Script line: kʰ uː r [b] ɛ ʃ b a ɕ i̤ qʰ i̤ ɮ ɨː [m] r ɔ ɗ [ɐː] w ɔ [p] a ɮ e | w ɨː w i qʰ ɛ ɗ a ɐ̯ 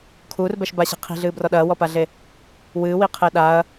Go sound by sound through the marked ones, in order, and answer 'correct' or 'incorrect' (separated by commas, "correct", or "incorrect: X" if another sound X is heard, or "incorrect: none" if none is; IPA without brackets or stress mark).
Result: correct, incorrect: b, correct, correct